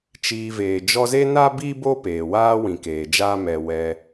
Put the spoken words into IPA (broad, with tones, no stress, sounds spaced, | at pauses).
t͡ʃ iː˧ v eː˨ d͡ʒ ɔ˦ z e˦ n a˦ b i˦ b o˦ p eː˨ w aː˦ w ĩ˨ k eː˨ d͡ʒ aː˦ m ɛ˧ w ɛ˧